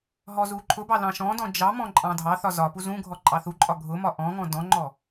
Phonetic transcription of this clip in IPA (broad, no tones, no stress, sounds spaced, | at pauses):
ɦ ɔ z u ǃʰ ʊ b ɑ l ɑ̃ ʃ ɔ̃ d ɔ̃ d͡ʒ ɑ m ɔ̃ ǃʼ ɑ̃ dʱ ɑ θ ɒ z ɒ p u z ũ ɡʱ ɔ ǃʼ ɑ θ u ǃʼ ɒ ɡʱ ʊ m ɒ ʔ ɔ̃ ŋ ɔ̃ d ɔ̃ ŋ͡ǃ ɔ